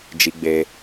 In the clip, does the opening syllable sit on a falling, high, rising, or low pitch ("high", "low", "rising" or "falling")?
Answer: high